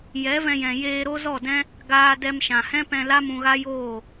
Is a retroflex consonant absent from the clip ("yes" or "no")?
yes